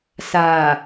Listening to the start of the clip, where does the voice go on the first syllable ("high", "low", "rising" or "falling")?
low